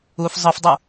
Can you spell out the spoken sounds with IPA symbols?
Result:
u f zˤ ɯ f dˤ u

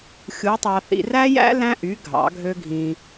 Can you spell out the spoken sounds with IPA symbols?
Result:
xʲ u˨˥ tˤ ɑ˧ θ ḭ˧ r æ˥ j æ̰˥ l æ̃˥ ʔ y˨˥ ɡʱ ɑ̰˨˥ ɡʱ ø˥ ɡʱ ĩ˧

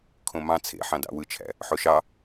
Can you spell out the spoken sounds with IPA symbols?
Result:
kʰ õ m ɑ̃ t͡sʰ ḛ ħ ɑ̃ d ɑ̰ w ɯ t͡ʃʰ æ̰ | ħ o ʃ ɑ

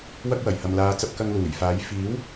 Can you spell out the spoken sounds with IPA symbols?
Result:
w ɐ˥ k̚ w ɐ˨˩ j h ɐ˨ m l aː˨˧ t͡s ɐ˧ p̚ k ɐ˧ ŋ l uː˨˩ j f aː˨˥ j f iː˨˥ w

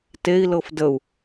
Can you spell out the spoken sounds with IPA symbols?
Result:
t e i̯ l ɤ f d ə u̯

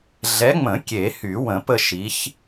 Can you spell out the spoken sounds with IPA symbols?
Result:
ɮ ɛ˨˦ ŋ͡m ə̃˨˩˦ kʲ e˨˩˦ h y˨˩˦ w ə̃˨˩˦ p ə˦˨ ʃ i˨˦ ç

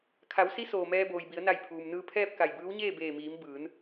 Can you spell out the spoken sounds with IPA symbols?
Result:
kʰ a˩˧ w s i˧˥ s oː˩ m ɛː˧ b oː˩ j b i˩˧ ə̯ n a˧˩ j pʰ uː˩ m n ɯː˧ pʰ ɛː˥˨ p̚ k a˧˩ j b ɯː˧˥ w ɲ eː˥˨ b eː˧˩ m iː˩˧ m b ɯː˩˧ n

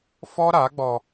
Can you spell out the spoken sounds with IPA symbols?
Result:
f ɔ˦ ɾ a˨˦ ɡ͡b ɔ˧

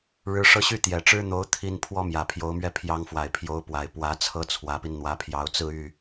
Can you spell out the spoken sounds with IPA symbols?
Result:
ɻ ɻ̩˧˥ ʂ ɤ˥˧ ɕ y˥˩ t̪ j ɛ˨˩ ʈ͡ʂ ɻ̩˥ n̪ o˧˥ ʊ̯ t̪ʰ i˥˩ n pʰ w ɔ˥ m j ä˨˩ pʰ j o˧˥ ʊ̯ m ɥ ɛ˥˩ pʰ j ɑ˧˥ ŋ f w a˨˩ ɪ̯ pʰ j o˧˥ ʊ̯ p w a˨˩ ɪ̯ p w ä˧˥ t͡sʰ ɤ˥ t͡sʰ w ä˧˥ p i˧ n n̪ w ä˧˥ pʰ j ɑ˧˥ ʊ̯ t͡s ɹ̩˥˧ y˥˩

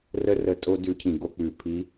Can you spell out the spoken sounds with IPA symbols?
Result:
r ə˧ r ə˨˩ tʼ o˧ d ʉ˧˥ cʰ ĩ˨˩ ɡ o˧ k͡p ʉ˨˩ pʰ i˧˥

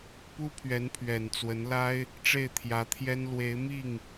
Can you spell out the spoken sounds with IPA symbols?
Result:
p u˥ pʰ ɥ ɛ˧˥ n pʰ ɥ ɛ˨˩ n t͡s w ə˧˥ n l a˥ ɪ̯ | ʈ͡ʂ e˥˩ ɪ̯ t̪ʰ j ä˧˥ t̪ʰ j ɛ˥ n l w e˧˥ ɪ̯ m i˥˩ ŋ

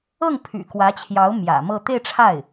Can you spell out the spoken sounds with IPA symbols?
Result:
ɤ˥˩ ŋ pʰ y̰˨˩ k w ä˧˥ t͡ɕʰ j ɑ˧˥ ʊ̯ m j ä̰˨˩ m ɤ˥˧ t̪ e˥˧ ɪ̯ ʈ͡ʂʰ a˥˩ ɪ̯

